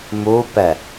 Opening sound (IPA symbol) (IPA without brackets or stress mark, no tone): m